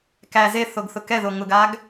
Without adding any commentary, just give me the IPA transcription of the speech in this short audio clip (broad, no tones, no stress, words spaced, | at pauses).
kæ ze θoɡθʊkɛðo ŋʊɡaɡ